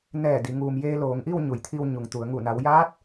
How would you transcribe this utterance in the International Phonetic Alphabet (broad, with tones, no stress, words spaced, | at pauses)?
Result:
nɛː˧˩di˩˧ ŋuː˩mjeː˧loː˩˧ŋʔi˥˨w ɲu˩˧jt̪ʰi˧w ɲu˩ŋt̪u˩˧ə̯ŋu˧˩ na˩˧wjaː˧˥t̚